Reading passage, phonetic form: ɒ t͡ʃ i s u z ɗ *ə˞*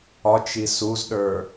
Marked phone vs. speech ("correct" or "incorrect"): correct